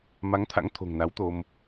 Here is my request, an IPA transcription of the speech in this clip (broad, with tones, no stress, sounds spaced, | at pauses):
m a˨˦ ŋ t̪ʰ a̰˧˥ ŋ t̪ʰ o̤˨˩ ŋ n a˨˦ w t̪ o˧ m